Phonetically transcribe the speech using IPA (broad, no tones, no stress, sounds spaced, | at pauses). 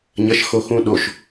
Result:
ɲ ɐ ʃ x o x ũ ɗ o ʃ